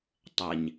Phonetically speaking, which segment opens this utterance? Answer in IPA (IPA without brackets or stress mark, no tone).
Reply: tˤ